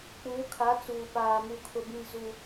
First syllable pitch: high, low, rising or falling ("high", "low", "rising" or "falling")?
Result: rising